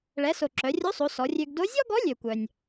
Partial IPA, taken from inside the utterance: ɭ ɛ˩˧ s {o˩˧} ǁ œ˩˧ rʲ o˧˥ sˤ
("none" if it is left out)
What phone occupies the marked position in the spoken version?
o˩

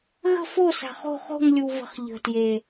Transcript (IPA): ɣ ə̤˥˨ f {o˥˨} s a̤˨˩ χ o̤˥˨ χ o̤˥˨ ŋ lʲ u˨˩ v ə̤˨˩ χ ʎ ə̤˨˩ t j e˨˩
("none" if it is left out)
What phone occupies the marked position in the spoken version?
o˥˨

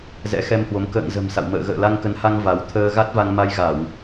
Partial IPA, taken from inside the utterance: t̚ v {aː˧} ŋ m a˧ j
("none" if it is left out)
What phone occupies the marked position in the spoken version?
a˧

